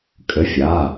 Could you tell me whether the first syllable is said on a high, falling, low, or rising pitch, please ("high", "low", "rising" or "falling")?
rising